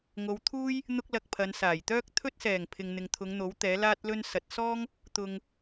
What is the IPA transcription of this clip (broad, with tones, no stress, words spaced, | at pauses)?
ŋo˨˧wt̪ʰuː˥j | n̪ʊ˥k̚lɐ˧k̚pʰɐ˨˧n saː˨˩jt̪œː˥k̚ t̪ʰɵ˥t̚sɛː˨˩ŋ pʰɪ˨ŋn̪ɪ˨ŋt̪ʰʊ˨˧ŋn̪o˨˥w t̪ɛː˨˥laː˥t̚lɵ˥nsɐ˨˥t̚ sɔː˥ŋ | t̪ʊ˧ŋ